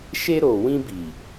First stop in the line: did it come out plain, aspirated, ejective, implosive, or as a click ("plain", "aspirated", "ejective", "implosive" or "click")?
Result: plain